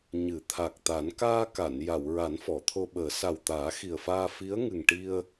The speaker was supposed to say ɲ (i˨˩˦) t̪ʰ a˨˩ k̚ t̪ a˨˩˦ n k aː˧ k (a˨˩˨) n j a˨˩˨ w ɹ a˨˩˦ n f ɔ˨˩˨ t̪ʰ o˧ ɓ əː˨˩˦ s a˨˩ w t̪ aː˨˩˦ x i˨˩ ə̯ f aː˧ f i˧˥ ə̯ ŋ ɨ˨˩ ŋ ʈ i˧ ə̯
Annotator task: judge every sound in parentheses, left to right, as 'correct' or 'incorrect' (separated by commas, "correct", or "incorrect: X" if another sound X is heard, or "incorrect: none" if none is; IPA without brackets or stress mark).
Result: incorrect: ɨ˨˩˦, correct